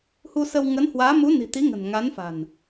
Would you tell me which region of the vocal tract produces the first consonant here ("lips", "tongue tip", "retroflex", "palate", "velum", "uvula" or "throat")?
throat